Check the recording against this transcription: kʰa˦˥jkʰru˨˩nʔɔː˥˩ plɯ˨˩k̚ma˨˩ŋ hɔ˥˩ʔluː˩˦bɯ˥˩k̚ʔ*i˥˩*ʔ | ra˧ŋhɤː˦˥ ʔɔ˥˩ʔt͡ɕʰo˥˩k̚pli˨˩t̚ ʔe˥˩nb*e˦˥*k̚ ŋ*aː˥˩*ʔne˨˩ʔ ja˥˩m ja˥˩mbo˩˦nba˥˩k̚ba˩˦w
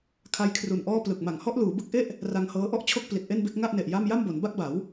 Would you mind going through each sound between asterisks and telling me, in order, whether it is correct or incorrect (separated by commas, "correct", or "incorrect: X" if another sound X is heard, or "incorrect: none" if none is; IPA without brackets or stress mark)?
incorrect: e˥˩, correct, incorrect: a˥˩